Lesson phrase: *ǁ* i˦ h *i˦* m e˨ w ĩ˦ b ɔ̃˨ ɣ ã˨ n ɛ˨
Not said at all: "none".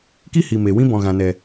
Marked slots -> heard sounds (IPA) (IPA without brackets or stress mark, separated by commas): k, i˨